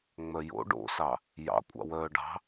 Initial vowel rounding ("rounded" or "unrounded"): rounded